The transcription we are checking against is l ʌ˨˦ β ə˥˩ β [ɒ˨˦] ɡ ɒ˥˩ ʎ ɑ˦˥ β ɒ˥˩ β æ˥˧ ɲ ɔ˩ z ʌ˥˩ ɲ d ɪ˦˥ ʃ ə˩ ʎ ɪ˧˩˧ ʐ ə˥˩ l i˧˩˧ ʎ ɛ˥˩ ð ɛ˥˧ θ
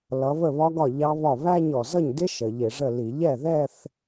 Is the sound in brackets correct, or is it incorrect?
incorrect